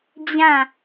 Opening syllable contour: falling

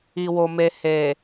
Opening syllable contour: low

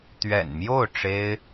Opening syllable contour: low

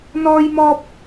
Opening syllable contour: high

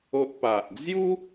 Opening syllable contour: high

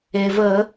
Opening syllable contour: low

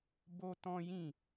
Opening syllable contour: high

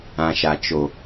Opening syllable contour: low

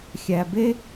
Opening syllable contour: low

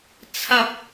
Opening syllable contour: high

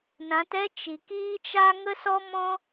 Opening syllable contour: rising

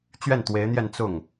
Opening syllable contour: falling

